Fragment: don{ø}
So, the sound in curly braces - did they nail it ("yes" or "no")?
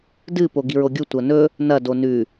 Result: no